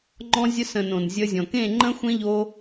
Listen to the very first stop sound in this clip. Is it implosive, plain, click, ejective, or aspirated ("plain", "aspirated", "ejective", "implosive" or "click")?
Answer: click